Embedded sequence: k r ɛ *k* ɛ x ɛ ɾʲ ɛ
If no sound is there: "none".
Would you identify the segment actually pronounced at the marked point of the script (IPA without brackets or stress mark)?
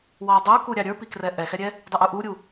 ʔ